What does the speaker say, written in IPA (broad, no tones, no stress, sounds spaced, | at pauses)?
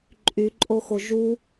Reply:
ǃʼ y ǃʼ o x o ʒ u